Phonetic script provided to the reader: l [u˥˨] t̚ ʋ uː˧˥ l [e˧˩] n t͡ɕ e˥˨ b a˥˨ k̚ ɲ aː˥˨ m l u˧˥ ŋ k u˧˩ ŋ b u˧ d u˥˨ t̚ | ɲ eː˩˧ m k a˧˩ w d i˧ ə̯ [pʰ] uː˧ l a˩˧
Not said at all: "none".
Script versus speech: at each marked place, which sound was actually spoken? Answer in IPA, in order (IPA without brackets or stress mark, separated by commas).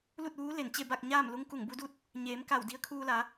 u˥˨, e˧˩, kʰ